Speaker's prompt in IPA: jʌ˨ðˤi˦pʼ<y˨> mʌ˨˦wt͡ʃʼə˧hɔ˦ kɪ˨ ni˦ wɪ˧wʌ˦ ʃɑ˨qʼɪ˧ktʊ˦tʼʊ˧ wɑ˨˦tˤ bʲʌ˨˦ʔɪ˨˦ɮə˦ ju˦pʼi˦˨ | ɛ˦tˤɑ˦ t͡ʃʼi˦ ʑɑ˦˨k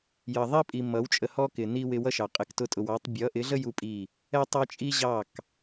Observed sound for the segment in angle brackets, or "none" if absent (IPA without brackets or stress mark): i˨